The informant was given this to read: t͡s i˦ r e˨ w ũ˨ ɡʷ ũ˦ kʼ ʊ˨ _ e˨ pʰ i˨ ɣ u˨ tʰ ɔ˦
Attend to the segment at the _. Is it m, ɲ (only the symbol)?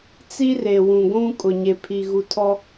ɲ